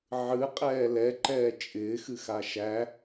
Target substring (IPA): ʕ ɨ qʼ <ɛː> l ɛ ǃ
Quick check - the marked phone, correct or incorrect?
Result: correct